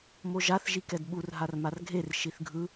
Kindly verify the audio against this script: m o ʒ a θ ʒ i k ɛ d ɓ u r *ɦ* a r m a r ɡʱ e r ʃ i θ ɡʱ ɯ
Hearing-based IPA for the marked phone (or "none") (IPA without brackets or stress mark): ɦ